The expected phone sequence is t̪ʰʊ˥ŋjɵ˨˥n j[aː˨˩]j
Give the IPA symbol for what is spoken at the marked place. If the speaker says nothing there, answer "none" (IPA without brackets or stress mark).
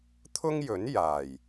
aː˨˩